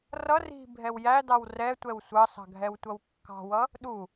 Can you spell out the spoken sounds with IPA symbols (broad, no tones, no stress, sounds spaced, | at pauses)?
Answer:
r ʌ r i̤ bʱ ɛ w j æ d ɑ w r ɛ tʷ ɛ w sʷ ɑ s ɑ̤ ɡʱ ɛ w tʷ ʌ w kː ɑ̤ w ʌ | ɗ u